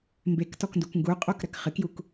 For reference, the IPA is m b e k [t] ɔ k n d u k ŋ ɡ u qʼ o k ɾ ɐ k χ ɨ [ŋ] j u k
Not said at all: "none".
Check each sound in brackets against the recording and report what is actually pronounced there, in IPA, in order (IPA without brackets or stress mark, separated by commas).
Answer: t, k